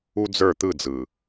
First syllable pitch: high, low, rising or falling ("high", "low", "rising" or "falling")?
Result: high